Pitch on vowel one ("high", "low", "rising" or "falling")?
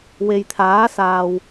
low